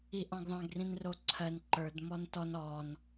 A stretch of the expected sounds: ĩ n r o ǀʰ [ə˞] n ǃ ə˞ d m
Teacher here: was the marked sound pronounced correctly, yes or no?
no